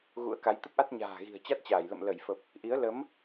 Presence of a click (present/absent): absent